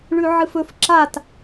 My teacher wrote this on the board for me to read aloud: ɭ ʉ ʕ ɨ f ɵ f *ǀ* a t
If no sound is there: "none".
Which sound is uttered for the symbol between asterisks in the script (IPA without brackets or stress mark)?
ǁ